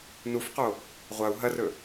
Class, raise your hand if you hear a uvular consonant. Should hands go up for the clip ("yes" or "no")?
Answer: yes